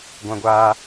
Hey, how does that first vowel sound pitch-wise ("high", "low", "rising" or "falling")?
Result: high